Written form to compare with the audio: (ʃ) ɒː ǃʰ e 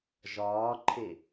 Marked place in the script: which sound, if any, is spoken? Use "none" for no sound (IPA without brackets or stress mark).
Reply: ʒ